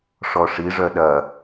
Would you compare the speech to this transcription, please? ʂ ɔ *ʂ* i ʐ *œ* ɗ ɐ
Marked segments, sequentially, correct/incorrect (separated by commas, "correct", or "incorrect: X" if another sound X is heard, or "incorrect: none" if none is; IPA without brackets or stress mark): correct, correct